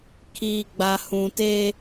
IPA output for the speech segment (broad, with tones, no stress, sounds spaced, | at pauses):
kʰ iː˨ ɡ͡b a˨ h ũ˨ t eː˦